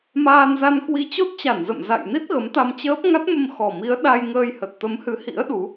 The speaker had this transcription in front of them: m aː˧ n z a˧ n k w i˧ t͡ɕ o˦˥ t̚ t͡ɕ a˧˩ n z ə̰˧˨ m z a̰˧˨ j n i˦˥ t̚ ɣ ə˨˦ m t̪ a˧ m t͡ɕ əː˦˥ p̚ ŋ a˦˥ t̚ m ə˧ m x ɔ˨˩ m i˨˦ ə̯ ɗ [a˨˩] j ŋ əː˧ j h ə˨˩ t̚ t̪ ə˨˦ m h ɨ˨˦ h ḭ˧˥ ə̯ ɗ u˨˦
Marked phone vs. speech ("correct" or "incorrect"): incorrect